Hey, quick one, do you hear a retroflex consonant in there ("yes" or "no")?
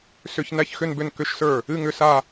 no